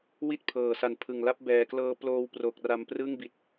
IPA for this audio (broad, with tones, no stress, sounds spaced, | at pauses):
w i˥˩ t̚ pʰ ɤː˨˩ s a˨˩ n pʰ ɯ˨˩ ŋ l a˦˥ p̚ b ɛː˨˩ k l ɤː˦˥ p l oː˦˥ w p r o˨˩ k̚ r a˧ m p r ɯ˥˩ ŋ b i˨˩ t̚